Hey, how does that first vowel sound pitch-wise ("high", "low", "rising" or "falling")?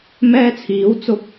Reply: high